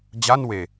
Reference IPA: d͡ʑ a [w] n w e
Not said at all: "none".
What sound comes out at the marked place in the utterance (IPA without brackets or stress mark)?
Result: none